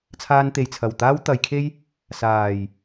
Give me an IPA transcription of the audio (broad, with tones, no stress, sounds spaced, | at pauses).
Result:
t͡sʰ aː˧ n t̪ e˨ j t͡sʰ ɐ˨˩ w t̪ aː˥ w t̪ ɐ˨˧ j kʰ e˥ j | s aː˨˩ j